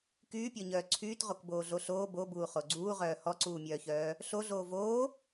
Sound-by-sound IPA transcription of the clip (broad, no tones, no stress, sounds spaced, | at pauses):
k yː pʲ ɔ ɲ œː ǀʰ yː t ʁ o k b oː ɮ o ɬ oː b o b uː χ o ɡ͡ǀ uː ʁ œː h ɔ ǀ uː mʲ œː ç œː | ɬ o ɮ oː v oː